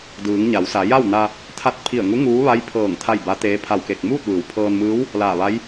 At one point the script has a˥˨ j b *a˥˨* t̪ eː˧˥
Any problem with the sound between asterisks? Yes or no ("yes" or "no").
yes